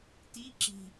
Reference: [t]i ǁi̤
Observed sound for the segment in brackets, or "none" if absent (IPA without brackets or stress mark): t